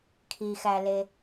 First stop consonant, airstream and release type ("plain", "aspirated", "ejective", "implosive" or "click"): aspirated